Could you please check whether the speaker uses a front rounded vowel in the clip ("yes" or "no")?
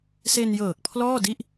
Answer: no